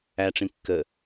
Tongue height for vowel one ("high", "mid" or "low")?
low